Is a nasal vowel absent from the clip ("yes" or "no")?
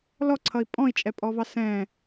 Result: no